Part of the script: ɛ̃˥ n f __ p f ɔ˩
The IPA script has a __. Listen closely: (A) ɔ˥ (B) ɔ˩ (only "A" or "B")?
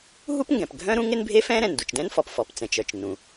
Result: B